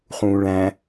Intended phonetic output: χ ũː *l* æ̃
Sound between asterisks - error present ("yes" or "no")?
yes